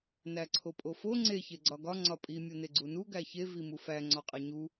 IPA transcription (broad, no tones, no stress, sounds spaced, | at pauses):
n æ ǀʰ o pʼ o f o ŋ͡ǀ e ç e ɡ͡ǀ ɒ ɡ ɒ ŋ͡ǀ ɒ pʼ i mʲ o n e ɡ͡ǀ u n u ɡ æ ç e v i m u f æ ŋ͡ǀ ɒ qʼ e ɲ u